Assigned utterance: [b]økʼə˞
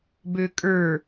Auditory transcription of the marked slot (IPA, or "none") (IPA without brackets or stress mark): b